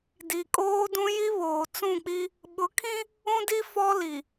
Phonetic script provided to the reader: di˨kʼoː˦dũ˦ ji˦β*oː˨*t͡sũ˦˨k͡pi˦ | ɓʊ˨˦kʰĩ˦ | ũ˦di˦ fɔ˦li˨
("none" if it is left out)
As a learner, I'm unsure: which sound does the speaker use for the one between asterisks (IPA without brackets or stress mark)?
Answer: oː˨